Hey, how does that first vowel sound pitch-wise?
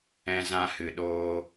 high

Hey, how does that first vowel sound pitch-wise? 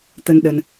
low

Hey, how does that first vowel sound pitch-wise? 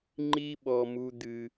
high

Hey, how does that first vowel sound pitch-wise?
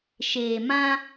low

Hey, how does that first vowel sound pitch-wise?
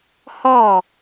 falling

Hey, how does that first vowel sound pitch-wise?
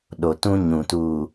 low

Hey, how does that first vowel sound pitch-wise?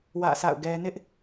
falling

